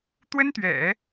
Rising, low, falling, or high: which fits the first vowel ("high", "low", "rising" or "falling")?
high